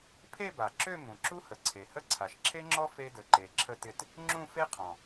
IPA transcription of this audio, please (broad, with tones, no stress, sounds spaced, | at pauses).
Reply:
pʰ e˥˧ b a˨˩ ǁ ø˥˧ m ũ˨˩ ǁ u˥ h ə˨˩ ǀʰ e˨˩ h ə˥˧ ǀʰ a˨˩ ʃ ǁʰ e˥ ŋ͡ǁ ɔ˥ f e˥ d ə˨˩ ǃ e˨˩ ǁʰ ə˥˧ t ɪ˥˧ t | ŋ͡ǁ ũ˥˧ f e˥ qʰ ɔ̃˨˩